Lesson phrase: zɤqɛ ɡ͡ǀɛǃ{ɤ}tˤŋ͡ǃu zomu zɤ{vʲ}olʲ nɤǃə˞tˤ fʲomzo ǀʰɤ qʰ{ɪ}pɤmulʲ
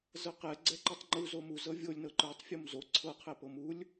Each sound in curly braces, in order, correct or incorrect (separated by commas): correct, correct, incorrect